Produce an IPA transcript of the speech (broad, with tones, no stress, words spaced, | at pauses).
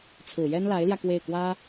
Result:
t͡sʰɹ̩˨˩jɛ˥nla˧˥ɪ̯ljä˧ kwe˥˩ɪ̯kwä˥